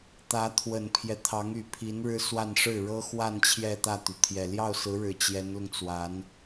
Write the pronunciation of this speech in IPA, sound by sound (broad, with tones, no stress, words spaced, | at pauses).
t̪ä˧˥t̪ʰwə˨˩npʰjɛ˦ t̪ʰɑ˧˥ŋy˨˩pʰi˧˥n ɻɻ̩˥swa˥˧n ʂɻ̩˥˩ɻɤ˥xwa˥˧n t͡ɕʰjɛ˥˧t̪ä˥˩t̪y˩t̪ʰjɛ˨˩ ljɑ˥˩ʊ̯sɹ̩˧˥ɻɻ̩˨˩ t͡ɕjɛ˧˥nlʊ˧ŋt͡swa˧˥n